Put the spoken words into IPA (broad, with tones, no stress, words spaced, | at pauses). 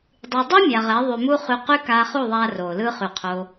dˤy˨dˤy˦ mʲa˨ʁɛ˨˦ ðˤy˨mu˦χy˧ qy˦kaː˧χu˦˨ðˤaː˧ roː˨lɯ˦ χy˨qʰo˧